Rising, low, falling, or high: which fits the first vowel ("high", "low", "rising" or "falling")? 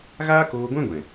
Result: high